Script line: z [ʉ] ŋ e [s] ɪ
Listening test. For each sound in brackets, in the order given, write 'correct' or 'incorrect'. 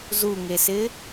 incorrect, correct

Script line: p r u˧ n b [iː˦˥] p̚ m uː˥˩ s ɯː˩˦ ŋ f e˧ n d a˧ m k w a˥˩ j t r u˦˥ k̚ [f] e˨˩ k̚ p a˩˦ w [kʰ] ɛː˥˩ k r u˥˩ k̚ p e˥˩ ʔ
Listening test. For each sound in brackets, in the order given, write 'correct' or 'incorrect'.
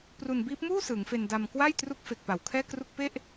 correct, correct, correct

